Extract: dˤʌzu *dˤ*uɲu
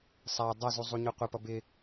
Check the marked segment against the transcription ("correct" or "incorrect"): incorrect